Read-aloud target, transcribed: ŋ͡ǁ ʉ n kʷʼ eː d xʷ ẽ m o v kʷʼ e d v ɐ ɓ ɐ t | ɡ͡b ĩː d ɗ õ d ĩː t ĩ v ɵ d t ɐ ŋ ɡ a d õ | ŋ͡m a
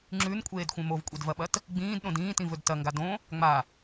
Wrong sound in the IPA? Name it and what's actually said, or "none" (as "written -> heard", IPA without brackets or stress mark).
none